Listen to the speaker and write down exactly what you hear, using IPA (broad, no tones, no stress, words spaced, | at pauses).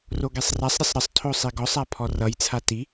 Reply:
roɡesˤrasˤɾʲʌsˤ ɾəsˤtʰo sˤiɡɔsˤa pʰɔrʌjt͡sʰa ti